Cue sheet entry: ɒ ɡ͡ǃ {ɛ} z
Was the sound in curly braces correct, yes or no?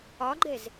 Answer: yes